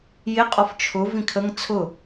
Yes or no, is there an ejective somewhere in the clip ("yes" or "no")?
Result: yes